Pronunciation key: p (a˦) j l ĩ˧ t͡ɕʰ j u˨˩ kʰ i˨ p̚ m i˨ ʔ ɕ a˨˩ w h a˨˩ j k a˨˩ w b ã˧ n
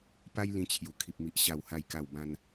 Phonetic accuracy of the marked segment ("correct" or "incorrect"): correct